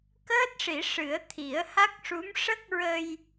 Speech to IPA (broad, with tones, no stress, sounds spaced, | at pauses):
k əː˦˥ t̚ ʂ i˨˩˦ ʂ ɨ˨˩˦ ə̯ t̪ʰ i˨˩˦ ə̯ h a˦˥ k̚ ʂ u˧˥ m ʂ ə˦˥ k̚ ɹ ə˧ j